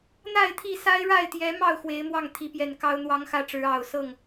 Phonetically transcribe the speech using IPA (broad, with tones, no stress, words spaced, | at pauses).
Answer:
n̪a˥˨ɪ̯t̪ʰi˥˨ sa˦ɪ̯ɻa˥˨ɪ̯t̪jɛ˨˦mɑ˥˨ʊ̯ xwe˨˦ɪ̯ mwɑ˥˨ŋt̪ʰi˨˦pjɛ˨˩n kɑ˦ʊ̯ n̪wɑ˦ŋxä˥˨ʈ͡ʂɻ̩˨˦ ɑ˨˩ʊ̯sɤ˥˨ŋ